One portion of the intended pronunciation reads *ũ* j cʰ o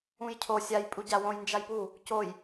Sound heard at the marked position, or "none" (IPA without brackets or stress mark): ũ